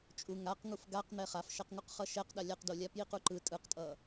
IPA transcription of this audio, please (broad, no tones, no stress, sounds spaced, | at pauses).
t͡ʃʼ u ŋ a q ŋ u f ɡ a q n̪ ɛ χ a f ʃ ɛ q ŋ u q χ ʌ ʃ ɛ q ɗ a lʲ a q d o lʲ a p j i q u ǃ ɯ tʼ ɯ q tʼ ʌ